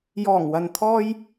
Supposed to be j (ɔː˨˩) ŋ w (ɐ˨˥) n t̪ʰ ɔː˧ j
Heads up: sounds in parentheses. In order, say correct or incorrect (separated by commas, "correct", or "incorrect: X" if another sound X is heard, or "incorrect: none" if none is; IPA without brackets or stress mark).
correct, incorrect: ɐ˨